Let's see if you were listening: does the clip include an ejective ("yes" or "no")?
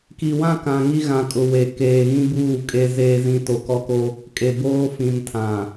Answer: yes